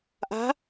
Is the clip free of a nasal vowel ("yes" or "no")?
yes